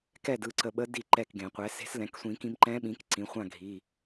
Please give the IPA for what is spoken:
k ɛ˥˨ d ɯ˥˨ ǀ ə˧ ɓ ə˧˥ d i˥˨ ǃ ɛ˥˨ k ɡ ẽ˨˩˦ qʷ ɛ˩˥ s e̤˧˥ s l ɛ̃˩˧˩ k sʷ ĩ˨˩˦ k ĩ˧ m ǃ ɛ̃˧˥ ɓ ĩ˩˥ k ǀ ĩ˩˧˩ χʷ ã˥˨ ɡʱ i˩˧˩

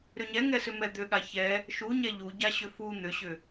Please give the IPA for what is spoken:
ɾ ʏ ɲ ɛ ŋ ɛ s ʏ m ɛ d̪ ʏ ɠ a ç ɛ | ʃ u ɲ ɛ ʎ u ɟ a ɕ ʏ f u n̪ ʏ ɕ ʏ

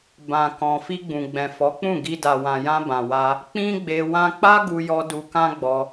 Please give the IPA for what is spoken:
b ã˨ k ɔ̃˨ f i˧ ɡ͡b ũ˨ ɡ͡b ɛ̃˨ f ɔ˨˦ k͡p ũ˦˨ ɡ i˧ d a˨ w ã˨ j ã˧ b ã˨ w a˧ | k͡p ĩ˦ ɡ͡b e˧ w ã˧ k͡p a˦ ɡ u˧ j ɔ˧ d u˧ k ã˦ ɡ͡b ɔ˧

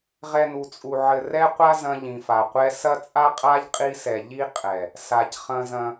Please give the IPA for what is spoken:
ʁ ɛ˦ n u˧ t͡sʼ u˧ ʕ ɘ˧ r ɛ˦ qʷ a˦ z ɐ̃˧ ʎ ĩ˨ f a˨ qʷ ɛ˧ s ɐ˦ t͡sʼ a˦ qʼ a˦ ʎ qʼ i˧ s ɛ˨ ʎ i˦ qʼ ɛ˨ | s a˧ c χ ɐ̃˦ z ɐ̃˦

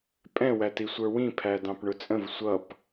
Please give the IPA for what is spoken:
pʼ ɛ̃ w æ t i sʷ ə˞ w ĩ pʰ æ d ɑ̃ p ɳ ʊ t͡sʼ ə̃ v sʷ ʌ p

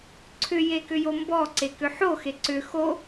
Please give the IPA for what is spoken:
ǀʰ ʏ j e k ʏ j o m b ɔ ǀ e k ʏ ħ o x e ǀ ʏ x o

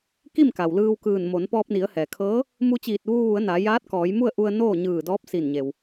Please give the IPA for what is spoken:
k i˥˨ m k a˩ w l ɯː˧ w k ɯː˧˩ n m o˩˧ n p ɔː˧ p̚ n i˩˧ ə̯ h ɛː˩ kʰ ɤː˧˥ | m u˧ t͡ɕ iː˧˩ t̚ ʋ uː˧ ʋ u˩˧ ə̯ n a˩˧ j aː˧˥ t̚ k ɔː˩˧ j m u˥˨ ə̯ ʔ u˧ ə̯ n oː˥˨ ɲ ɯː˧˩ d ɔː˧˥ p̚ s i˧˩ n ɲ e˩ w

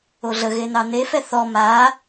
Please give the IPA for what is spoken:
o ɮ ə ɣ e n ɑ n e f ɛ θ ɔ m a

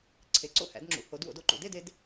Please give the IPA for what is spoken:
ǀʰ e˨˦ ǀ o̰˥˧ h æ̰˨˦ d ŋ͡ǁ ṵ˨˦ h o˨˦ d w o̰˨˦ d o˥˧ ǃ ṵ˨˦ d e˥˧ d e˨˦ d

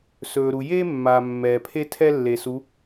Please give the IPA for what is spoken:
s ɵː˨ ɾ u˨ j eː˦ mː aː˨ mː ɛː˨ pʰ e˦ tʰ ɛ˦ lː e˨ s u˨˦

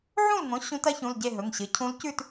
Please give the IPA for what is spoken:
ʕ ũ˥˨ l ŋ õ˩˥ ɕ ũ˧˥ t ɐ˧˥ ç ũ˩˧˩ l ɟ e˥˨ ɦ ɵ˩˧˩ ŋ ɕ ɨ˩˥ cʰ ũ˧˥ l c ʉ˥˨ t

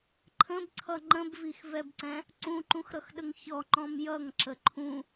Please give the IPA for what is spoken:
ǃʰ ə̃ b ǀʰ ʌ ŋ͡ǃ ə̃ b v i x v ɛ b ǀ ɛ̃ | ǀ ũ ǃ ũ x ɾ ʌ x ɗ ə ŋ ç ɔ ŋ͡ǃ ɔ̃ m j ʌ ŋ ǁ ə ǃʰ ũ

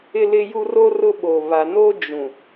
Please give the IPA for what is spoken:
ɪ˦ l ɪ˦ j u˦ r o˦ r ʊ˦ ɓ o˨ β a˨ n o˦ d͡ʒ ũ˨

